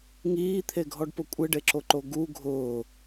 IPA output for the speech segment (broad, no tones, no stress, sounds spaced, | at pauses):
ŋ iː t̪ʰ e ɡʱ ɔ ɖ p ʊ kʷʼ ɪ ɖ e ǁ o ǃ o ɡ u ɡʱ ʊː